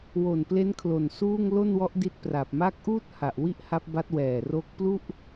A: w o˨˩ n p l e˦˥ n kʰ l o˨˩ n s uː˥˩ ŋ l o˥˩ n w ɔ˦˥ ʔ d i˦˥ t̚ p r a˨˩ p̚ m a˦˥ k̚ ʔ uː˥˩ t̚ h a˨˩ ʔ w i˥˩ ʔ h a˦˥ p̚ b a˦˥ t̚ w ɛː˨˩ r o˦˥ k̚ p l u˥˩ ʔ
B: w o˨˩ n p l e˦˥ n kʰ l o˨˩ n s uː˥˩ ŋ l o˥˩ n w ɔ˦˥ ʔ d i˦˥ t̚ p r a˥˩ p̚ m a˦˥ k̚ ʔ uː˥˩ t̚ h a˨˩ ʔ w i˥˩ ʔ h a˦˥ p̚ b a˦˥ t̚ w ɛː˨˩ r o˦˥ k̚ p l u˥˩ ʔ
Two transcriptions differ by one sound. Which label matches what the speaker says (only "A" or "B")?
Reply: A